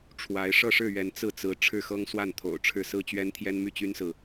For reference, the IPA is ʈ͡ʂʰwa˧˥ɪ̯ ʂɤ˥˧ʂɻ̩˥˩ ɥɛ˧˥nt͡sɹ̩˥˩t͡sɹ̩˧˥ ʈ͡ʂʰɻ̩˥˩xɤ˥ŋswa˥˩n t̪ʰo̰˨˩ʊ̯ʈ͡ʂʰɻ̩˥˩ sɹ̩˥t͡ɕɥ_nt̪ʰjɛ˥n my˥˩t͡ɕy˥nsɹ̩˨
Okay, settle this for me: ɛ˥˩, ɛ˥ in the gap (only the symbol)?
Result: ɛ˥